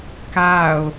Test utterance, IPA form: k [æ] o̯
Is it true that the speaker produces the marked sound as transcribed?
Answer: no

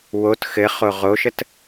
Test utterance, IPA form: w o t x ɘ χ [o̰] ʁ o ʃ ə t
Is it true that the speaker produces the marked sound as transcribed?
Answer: no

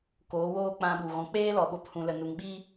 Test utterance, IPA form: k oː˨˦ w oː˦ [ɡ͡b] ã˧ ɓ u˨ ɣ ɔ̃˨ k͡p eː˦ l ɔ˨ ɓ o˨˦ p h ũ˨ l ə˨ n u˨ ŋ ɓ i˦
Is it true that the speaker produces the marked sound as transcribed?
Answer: no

